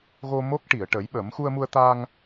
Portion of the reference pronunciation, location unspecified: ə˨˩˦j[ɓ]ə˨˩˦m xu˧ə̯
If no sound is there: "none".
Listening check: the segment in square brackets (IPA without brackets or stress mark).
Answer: ɓ